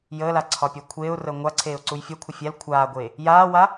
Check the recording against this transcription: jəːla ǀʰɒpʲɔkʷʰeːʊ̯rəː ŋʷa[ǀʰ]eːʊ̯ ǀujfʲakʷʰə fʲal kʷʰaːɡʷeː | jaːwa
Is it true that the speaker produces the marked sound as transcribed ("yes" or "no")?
yes